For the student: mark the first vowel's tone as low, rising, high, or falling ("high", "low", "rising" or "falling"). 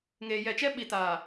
low